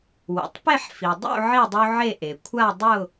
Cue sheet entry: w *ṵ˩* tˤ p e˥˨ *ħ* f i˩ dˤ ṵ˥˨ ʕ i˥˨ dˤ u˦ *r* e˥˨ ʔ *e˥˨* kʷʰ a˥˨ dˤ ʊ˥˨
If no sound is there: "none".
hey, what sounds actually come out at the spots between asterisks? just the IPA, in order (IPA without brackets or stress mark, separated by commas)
ṵ˩, ħ, ʕ, e˩